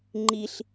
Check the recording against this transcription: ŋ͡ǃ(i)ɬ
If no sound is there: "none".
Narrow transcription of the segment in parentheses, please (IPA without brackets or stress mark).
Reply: i